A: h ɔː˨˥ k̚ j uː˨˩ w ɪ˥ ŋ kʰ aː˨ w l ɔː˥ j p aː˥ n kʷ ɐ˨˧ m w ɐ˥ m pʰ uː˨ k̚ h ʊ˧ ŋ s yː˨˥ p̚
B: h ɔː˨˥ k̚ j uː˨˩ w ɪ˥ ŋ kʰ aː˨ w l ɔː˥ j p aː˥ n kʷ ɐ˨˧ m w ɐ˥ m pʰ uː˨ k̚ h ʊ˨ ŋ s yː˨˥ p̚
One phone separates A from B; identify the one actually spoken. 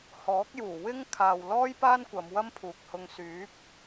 A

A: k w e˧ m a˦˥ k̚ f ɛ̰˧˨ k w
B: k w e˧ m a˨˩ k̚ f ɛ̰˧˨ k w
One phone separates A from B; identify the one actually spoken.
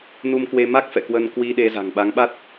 A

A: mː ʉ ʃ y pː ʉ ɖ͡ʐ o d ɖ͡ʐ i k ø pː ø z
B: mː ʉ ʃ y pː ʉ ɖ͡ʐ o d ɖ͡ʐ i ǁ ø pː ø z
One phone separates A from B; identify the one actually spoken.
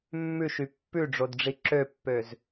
B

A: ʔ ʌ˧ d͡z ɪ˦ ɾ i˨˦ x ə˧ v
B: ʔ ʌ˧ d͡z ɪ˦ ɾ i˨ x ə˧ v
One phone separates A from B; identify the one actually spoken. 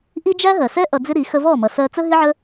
A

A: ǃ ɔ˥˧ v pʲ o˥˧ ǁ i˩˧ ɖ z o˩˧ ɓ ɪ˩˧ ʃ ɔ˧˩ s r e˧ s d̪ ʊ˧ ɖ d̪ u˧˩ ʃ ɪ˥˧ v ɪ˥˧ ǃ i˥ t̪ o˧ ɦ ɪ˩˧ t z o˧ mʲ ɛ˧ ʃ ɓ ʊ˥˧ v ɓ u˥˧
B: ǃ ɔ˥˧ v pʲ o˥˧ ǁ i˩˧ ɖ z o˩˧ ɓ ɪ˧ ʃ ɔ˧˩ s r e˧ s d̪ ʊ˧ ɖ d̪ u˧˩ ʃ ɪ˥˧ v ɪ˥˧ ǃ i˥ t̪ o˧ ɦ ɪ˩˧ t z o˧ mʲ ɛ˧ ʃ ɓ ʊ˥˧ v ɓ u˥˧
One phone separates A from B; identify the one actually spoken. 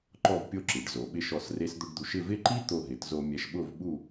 B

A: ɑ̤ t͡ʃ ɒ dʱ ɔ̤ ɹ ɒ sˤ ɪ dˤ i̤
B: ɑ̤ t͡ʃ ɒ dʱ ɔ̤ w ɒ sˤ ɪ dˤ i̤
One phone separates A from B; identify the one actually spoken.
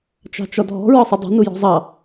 A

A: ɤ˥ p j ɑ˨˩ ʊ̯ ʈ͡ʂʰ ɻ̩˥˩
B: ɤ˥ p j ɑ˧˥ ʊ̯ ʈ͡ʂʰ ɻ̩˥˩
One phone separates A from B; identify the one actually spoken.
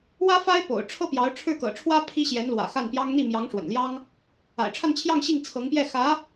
B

